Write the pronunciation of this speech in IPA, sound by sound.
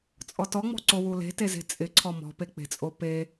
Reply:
t͡sʼ ɔ t ɔ ŋ͡m ɔ̤ ǀ o w u l e̤ t e z e̤ t͡sʼ ɪ ǀʰ ɔ m ɔ̤ p e k͡p e̤ t͡sʼ o p e

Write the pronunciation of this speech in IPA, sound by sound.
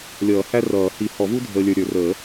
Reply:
lʲ ʌː˨˩˦ h æ˥ r ʌː˨˩˦ h i˨˩˦ h ɔ˨˩˦ v u˥ dʱ əː˨ lʲ ə˞˨ ɾʲ ə˞˨˩˦ r əː˨˩˦

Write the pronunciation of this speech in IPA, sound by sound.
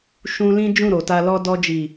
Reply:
ʃ ũ˧ l ĩ˦ d͡ʒ ũ˦˨ ɾ o˨ t a˧ l ɔ˧ d ɔ˧ d͡ʒ i˨

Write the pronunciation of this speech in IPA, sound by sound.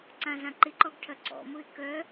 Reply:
ǀ ã z ã ǃ ɪ ǃ ɔ ɡ ʈʰ ɐ ǀ ɔ̰ m ʊ ɪ̯ k œ

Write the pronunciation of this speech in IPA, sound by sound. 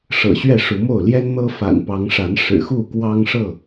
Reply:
ʂ ɤ̰˨˩ ɕ ɥ ɛ˥˨ ʂ u˨˦ m o˥˨ ʊ̯ l j ɛ˦ n n̪ ɤ˦ f a̰˨˩ n p ɑ˨˦ ŋ ʂ a˨˦ n ʂ ɻ̩˨˩ x u˥˨ k w ɑ˦ ŋ ʂ ɤ˥˨

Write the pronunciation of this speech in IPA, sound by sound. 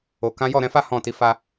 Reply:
o˨ k ã˨˦ j ɔ˦˨ ɾ ɛ̃˧ f a˦ h ɔ̃˦˨ t i˨˦ f a˧

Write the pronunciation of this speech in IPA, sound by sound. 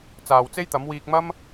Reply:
t͡s aː˨ w t͡s e˥ j t̪ ɐ˨˥ m w iː˧ k̚ m ɐ˥ m

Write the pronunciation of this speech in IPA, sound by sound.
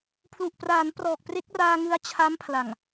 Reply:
pʰ l u˨˩ ʔ p r aː˩˦ n p r ɔː˨˩ k̚ p r e˦˥ k̚ r aː˧ ŋ ɯ˦˥ a̯ t͡ɕʰ a˦˥ m pʰ l a˨˩ ŋ

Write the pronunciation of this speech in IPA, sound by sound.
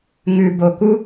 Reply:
ŋ ʉ˨ b o˨ k u˥

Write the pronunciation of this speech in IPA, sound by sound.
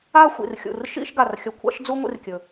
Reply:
a˥˧ xʷ ḭ˧˩ r xʲ ṵ˧˩ r ʃ ḭ˥˧ ʃ ɡ a˧˩ r xʲ ɐ˧ kʷʰ a̰˥ ʃ d͡z u˥ ŋʷ ḭ˥ r kʲ ɵ˧˩

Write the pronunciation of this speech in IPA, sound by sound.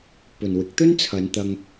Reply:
p ɵ˨ n w ɪ˨˥ k̚ t̪ ɵ˥ n t͡sʰ ɐ˨˧ n t̪ ɐ˧ ŋ

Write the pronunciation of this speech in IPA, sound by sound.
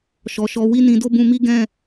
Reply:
ʃ ɔ˨ ʃ ɔ˧ w i˦ n ĩ˧ d o˦ b ũ˧ m i˦ ɡ ɛ̃˦˨

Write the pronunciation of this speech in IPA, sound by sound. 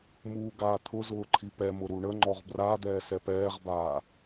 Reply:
m uː ɡ aː t̪ʰ ʊ z ʊː ǃʰ i p ɛ m ʊ ɾ u ɳ ə ŋ͡ǃ ɔ ʁ b r a d̪ ɛː s ɛ p ɛː ʁ b aː

